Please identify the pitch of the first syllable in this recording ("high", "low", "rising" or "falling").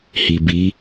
low